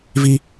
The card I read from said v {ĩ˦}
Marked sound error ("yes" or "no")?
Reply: yes